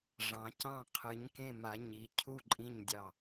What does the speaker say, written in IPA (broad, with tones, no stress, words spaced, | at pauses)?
ʐɑ̃˩˧cɑ̃˧˩qʰɨ˩˧ɲ kẽ˧˩ma˩˧ɲi˩˧ cʰu˧˩ǃʼĩ˧˩ɲdʲɑ˧˩